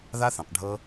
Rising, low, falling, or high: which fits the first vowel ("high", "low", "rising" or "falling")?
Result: high